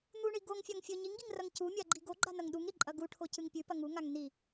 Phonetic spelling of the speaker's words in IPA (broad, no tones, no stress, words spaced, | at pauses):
n̪uɳi ɡoŋfʲaŋ fʲɵ ɲiŋɡiŋrɐŋ cumʲaɡ͡ǃi ɡoɡ͡ǃanɐŋ ɗuŋɾiǃʼɐ ɡuʈʰocɨŋ pʲʉpɐ ŋuŋaŋ ni